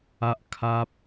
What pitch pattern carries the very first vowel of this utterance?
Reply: high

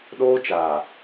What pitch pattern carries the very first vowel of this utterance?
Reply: high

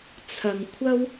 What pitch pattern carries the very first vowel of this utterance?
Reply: low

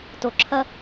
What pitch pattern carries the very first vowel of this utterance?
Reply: low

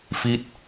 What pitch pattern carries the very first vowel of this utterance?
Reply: falling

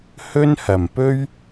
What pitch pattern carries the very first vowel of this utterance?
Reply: high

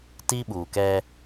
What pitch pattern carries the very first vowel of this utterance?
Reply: high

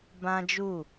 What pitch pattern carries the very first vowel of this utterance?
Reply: high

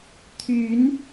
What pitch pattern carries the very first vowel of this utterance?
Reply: rising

